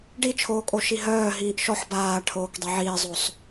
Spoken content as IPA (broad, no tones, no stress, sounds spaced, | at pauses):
ɖ i t͡ʃʰ oː kʼ o ʃ i ɦ œː ɦ iː ʔ ʃ ɔ ħ b aː ʈʰ oː k dˤ e ʕ iː zˤ o sˤ